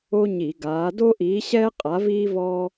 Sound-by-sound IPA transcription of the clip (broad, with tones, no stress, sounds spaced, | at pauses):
o˦ ɲ i˧˩˧ ɡ aː˨˦ d o˦ ʔ iː˨˦ ɕ ɛː˦ qʼ a˨˦ v iː˦ v ɔː˦